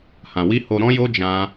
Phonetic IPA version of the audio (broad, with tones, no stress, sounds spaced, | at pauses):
h ã˨ w i˧ h o˧ ɾ ɔ̃˦ j o˦ d͡ʒ ã˦